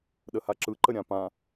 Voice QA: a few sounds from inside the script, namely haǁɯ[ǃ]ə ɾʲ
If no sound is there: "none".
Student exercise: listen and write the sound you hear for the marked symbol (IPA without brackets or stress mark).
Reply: ǃ